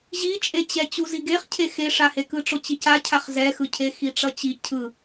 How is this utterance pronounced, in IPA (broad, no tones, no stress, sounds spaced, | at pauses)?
ʑ i t͡ʃʼ e t͡ɕ ɛ t͡ɕ u z i ɡ e χ cʰ e x e ʂ a h e k ɯ ʈ͡ʂ o t͡ɕ i c a cʰ a χ z ɛ x ɯ cʰ e x i ʈ͡ʂ ʌ t͡ɕ i cʰ ɯ